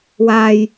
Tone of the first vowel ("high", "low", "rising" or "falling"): low